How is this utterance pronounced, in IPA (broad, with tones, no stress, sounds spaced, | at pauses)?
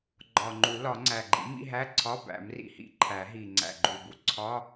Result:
ɡ͡ǃ ɒ˨˩ ŋ͡ǃ u˨˩˦ l ɒ˨˩˦ ŋ͡ǀ æ˨˩ ɡ͡ǃ ḭ˩˥ m ḭ˧˥˧ ɦ æ˧˥˧ ǀʰ ɒ˧˥˧ b æ̰˨˩˦ m r ḭ˨˩˦ h ḭ˨˩˦ ǃʰ æ˨˩˦ ɦ i˨˩ ŋ͡ǀ æ̰˨˩ ɡ͡ǃ u˨˩ b u˧˥˧ ǀʰ ɒ˧˥˧